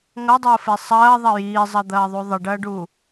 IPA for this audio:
ŋʌdˤəːfe sˤɐːðˤɐ jiːzˤʌd̪ɐːðˤu ðˤəɖɐːɖuː

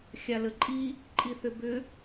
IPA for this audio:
xʲaləǃʼi | ǃʼiθʏbʏ

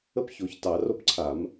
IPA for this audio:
ə˦p ço˨˩˦ç tɑ˨˩˦ro˦pǀʰa˨˩˦m

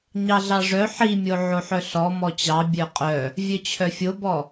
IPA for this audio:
ɲɑɮɑʐœ ħimʲo ʕoħœɬɔ mɔt͡ɕɑ bʲœqʼœ | vʲœt͡ɕʰœfʲobɔ

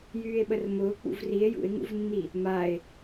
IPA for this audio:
jyːe̯ɓərmʊː k͡pṵvrie̯ jṵe̯ŋṵvnːi | mae̯

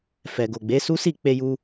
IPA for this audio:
fɛ˨ɡo˨ɡ͡be˨˦su˦ si˦˨ k͡pe˧ju˧

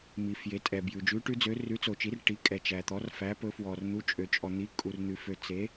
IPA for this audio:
mi˩fje˩˧tʼɛ˩ bjʉ˩ d͡ʒʉ˩˧ʈʉ˩˧d͡zø˩˧ rʉ˩˧t͡so˩t͡ʃi˩˧r ʈi˩˧kʼɛ˩t͡ʃæ˩t̪ɔ˩˧r fæ˩˧pɵ˩˧fwɔ˩r n̪u˩˧t͡ʃʼø˩t͡ʃʼɔ˩n̪i˩˧ kʼu˩rn̪ʉ˩ fø˩ t͡se˩˧

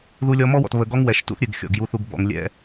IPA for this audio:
ðu˦lʲɔ˦ mɔ˦wɔ̰˨t βə˨ɡɔ˦ŋwɛ˨ʃtṵ˦θ ɾʲɨ˨ɡxʲɔ̰˨ɡ ju˨θu˨ɡ bɔ̰˨ŋ lʲɛ̰˦

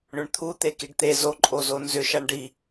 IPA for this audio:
ɳʏɳt̪ʰu t̪ekiɖt̪e zoǃʼo zonzʏʃaɳ ɖi

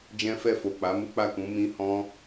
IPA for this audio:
d͡ʒɛ̃˦fɛ˦˨fo˨ k͡pa˨˦mu˦k͡pa˦˨ kũ˨˦ mĩ˦hɔ̃˦

